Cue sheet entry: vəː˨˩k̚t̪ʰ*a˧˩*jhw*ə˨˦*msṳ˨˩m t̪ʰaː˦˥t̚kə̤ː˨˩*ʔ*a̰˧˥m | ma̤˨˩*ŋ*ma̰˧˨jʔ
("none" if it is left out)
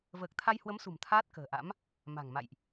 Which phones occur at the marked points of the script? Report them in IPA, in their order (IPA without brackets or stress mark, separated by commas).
a˧, ə˨˦, ʔ, ŋ